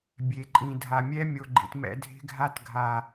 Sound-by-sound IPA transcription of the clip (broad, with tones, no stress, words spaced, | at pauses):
bʲe˨ǃʼĩ˨ dʱa˨mʲɛ˦mʲo˨ɡ͡ǃḭ˨t mɛ̰˨ dʱe̤˦ɡʱa˦tɡʱa˨